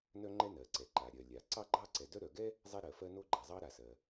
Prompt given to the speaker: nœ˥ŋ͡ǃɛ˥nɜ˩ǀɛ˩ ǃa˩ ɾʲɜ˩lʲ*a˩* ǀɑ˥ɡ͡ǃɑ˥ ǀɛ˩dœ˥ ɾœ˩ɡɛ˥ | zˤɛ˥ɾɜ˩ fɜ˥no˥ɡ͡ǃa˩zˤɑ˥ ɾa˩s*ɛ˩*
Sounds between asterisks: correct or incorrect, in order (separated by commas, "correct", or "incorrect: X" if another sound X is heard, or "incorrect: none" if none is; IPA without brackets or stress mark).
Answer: correct, incorrect: ɜ˩